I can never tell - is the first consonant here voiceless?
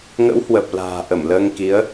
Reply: no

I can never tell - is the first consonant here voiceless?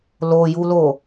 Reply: no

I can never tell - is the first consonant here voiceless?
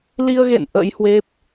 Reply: no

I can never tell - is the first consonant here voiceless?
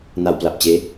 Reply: no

